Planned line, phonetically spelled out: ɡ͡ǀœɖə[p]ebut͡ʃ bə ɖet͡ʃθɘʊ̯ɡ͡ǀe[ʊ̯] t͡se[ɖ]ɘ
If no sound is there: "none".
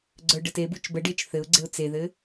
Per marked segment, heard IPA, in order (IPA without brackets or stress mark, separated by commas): t, ʊ̯, ð